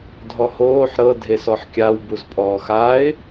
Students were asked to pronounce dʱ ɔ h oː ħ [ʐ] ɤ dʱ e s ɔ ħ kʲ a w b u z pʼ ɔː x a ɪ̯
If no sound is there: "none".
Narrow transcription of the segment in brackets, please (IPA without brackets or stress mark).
ɾ